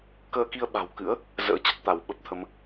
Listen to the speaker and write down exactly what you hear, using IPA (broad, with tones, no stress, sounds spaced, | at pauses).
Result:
k əː˧ k i˧ ə̯ ɓ a̤˨˩ w k ɨ̰˧˥ ə̯ | z ə̰ː˧˥ t͡ɕ ə˦˥ t̚ t̪ a˧˩ w ɓ ə˦˥ p̚ t̪ʰ ə˨˦ m